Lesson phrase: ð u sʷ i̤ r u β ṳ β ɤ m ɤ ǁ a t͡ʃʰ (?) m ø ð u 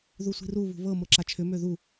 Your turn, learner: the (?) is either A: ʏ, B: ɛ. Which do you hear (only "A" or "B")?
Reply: A